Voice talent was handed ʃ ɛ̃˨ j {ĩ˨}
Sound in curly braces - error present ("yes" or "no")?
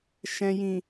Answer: no